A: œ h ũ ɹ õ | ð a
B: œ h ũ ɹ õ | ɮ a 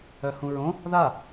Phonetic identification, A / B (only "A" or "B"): A